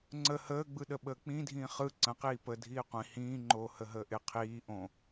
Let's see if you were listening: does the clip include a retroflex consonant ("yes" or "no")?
no